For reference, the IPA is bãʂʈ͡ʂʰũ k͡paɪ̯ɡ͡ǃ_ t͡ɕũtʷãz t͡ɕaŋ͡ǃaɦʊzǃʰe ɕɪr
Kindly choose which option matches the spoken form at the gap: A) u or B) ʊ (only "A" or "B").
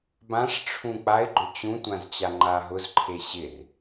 B